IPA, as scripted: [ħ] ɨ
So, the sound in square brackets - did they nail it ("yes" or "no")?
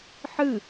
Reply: yes